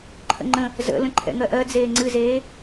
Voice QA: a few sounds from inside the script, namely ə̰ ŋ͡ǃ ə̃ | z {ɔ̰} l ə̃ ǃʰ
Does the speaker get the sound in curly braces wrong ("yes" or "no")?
yes